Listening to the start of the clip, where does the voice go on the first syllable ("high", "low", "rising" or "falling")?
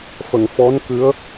low